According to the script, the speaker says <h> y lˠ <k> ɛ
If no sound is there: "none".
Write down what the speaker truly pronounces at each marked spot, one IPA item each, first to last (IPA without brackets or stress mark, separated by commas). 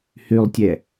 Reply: h, tʲ